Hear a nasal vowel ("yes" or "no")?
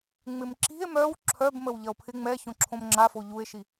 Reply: yes